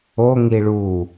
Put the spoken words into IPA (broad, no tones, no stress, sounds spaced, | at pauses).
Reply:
o ŋ i ɭ u